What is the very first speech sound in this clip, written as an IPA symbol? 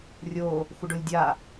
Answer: rʲ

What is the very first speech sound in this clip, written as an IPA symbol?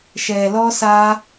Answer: ʃ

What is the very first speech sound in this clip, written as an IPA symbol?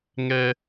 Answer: ŋ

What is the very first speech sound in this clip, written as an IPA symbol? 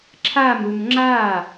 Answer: ǁʰ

